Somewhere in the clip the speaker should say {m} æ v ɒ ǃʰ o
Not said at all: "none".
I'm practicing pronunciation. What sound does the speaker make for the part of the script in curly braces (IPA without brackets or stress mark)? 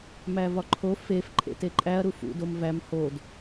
m